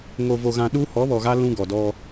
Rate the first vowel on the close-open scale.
mid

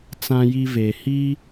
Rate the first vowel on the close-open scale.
open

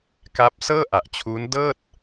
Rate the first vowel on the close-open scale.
open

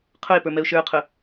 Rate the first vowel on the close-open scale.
close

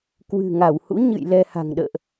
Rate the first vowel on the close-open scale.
close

